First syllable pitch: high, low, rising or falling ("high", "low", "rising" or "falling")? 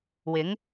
rising